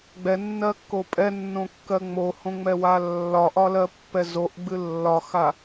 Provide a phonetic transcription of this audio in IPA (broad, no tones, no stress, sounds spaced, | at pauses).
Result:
ɡ͡b ɛ nː ɜ kː o pʼ ɛ nː õ kː ɜ ŋ͡m o h õ ŋ͡m ɛ w a lː ɒ ʔ ɒ l ɜ pː ɛ z o ʔ ɡ͡b ɨ lː ɒ x a